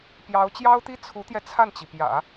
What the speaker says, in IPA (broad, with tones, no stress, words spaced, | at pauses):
pjɑ˧˥ʊ̯ t͡ɕjɑ˥ʊ̯t̪i˥ t͡sʰu˧˥t̪jɛ˧ t͡sʰa˥˩nt͡ɕi˩pjä̰˨˩˦